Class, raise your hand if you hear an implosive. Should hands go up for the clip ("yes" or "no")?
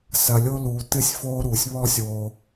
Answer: no